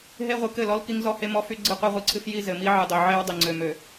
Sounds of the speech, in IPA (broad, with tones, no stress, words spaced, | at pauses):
ɦe˦ ʁʷɨ˨ kɘ˦˨ lɔ˦lki˦ŋ zɔ˦he˦mɔ˦fy˦ ɡ͡ǀɨ˦˨qʷe˦ʁʷɨ˨ǀʰɨ˦f ji˦ zɘ˨mi˦ʕɨ˨dˤø˨ ʕe˦w dˤe˨ŋ͡ǀø˨ mø˨